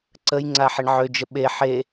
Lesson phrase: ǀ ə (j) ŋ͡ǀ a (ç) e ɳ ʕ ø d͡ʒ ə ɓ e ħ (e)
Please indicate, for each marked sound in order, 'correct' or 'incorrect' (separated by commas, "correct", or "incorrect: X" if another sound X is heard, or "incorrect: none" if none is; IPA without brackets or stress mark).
correct, incorrect: ħ, correct